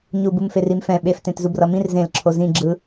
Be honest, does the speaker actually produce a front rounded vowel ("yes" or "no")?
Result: no